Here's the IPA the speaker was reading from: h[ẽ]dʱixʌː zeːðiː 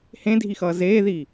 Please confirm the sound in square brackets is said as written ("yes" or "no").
yes